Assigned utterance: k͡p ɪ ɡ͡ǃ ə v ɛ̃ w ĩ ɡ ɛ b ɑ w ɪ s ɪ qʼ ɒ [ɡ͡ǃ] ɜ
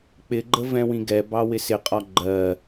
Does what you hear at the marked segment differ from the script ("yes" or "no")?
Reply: no